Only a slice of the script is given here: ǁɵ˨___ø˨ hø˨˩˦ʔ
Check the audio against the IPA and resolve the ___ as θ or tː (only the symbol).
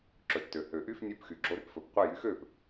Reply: tː